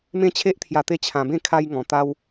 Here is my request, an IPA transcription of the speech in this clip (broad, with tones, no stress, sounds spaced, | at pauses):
m ẽ˦ t͡ɕʰ e˦ ʔ t̪ʰ j a˧ t̪ e˦ t͡ɕʰ ã˧ b ẽ˥˧ kʰ a˦ j ŋ ɔ̃˧ t̪ a˦ w